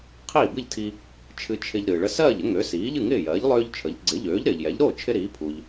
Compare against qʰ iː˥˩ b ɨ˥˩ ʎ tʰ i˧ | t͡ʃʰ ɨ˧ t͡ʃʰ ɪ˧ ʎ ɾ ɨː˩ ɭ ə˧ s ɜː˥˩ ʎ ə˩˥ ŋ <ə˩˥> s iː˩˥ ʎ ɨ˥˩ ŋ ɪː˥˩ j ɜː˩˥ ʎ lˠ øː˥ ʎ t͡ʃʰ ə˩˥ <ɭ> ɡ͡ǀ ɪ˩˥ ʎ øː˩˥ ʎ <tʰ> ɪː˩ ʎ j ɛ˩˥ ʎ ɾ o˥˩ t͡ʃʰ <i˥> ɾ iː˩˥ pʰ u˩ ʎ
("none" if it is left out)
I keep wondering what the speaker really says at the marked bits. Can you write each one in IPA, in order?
ø˩˥, ʎ, ɾ, ɪ˥

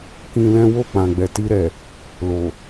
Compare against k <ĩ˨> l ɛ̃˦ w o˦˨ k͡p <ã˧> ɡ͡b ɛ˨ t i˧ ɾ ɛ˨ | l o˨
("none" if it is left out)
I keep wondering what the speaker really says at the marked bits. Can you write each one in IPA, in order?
ĩ˧, ã˨

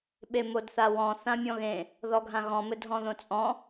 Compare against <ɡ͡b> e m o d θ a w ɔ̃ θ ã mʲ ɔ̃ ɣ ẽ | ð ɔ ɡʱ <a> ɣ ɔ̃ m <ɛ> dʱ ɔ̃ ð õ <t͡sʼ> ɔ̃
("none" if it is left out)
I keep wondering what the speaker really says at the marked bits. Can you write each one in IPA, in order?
ɓ, ã, ɘ, t͡sʼ

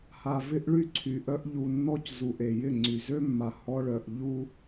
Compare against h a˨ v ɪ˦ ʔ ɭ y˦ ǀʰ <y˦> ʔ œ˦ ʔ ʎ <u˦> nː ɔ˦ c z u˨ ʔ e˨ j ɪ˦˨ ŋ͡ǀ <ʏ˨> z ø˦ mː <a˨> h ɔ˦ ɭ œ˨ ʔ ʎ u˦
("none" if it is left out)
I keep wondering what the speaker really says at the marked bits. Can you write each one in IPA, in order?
y˨, u˨, y˨, a˨

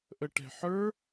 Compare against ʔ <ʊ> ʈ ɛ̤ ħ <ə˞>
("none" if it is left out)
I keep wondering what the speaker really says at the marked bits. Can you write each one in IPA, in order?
ə, ə˞

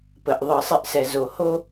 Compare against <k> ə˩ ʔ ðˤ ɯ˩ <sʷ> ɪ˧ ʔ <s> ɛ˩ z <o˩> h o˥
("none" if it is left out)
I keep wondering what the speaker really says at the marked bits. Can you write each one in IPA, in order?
p, sˤ, s, o˩

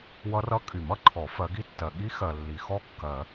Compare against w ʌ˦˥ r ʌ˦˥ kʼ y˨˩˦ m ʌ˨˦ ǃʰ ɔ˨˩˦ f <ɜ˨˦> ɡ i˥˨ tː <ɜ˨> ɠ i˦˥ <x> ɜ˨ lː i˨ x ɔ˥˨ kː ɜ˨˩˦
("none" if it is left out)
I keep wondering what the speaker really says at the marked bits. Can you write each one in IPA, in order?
ɜ˨˦, ɜ˨, x

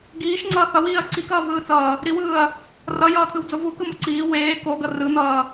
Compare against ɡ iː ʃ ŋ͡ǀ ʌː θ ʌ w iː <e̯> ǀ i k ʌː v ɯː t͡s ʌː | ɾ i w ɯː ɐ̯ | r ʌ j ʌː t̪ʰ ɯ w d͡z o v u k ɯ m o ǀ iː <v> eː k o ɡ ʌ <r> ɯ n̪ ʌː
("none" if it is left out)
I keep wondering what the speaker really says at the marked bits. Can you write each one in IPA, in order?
ɐ̯, w, r

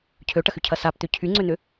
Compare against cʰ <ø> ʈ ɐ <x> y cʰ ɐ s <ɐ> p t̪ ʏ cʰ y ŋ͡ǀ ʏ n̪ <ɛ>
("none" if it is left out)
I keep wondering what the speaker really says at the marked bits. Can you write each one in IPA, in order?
ø, x, a, ʏ

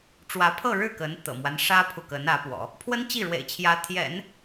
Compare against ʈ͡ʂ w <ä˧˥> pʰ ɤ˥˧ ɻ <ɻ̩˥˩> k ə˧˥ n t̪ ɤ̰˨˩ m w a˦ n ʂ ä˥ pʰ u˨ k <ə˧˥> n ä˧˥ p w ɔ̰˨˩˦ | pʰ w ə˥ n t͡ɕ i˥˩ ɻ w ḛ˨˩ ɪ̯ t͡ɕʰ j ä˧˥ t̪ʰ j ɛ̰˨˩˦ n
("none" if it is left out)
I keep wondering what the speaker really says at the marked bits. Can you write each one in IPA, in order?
ä˧˥, ɻ̩˥˩, ə˧˥

